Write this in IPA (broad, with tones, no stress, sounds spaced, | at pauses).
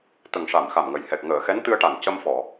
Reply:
t̪ ə˨˩ ŋ ʂ a˨˩˨ m x a˨˩ m ŋ ə˨˩ j h ɛ˨˩ k̚ ŋ əː˨˩˨ x ɛ˧˥ n t̪ ɨ˧ ə̯ ʈ a˨˩ n c ə˧ m f ɔ˨˩˨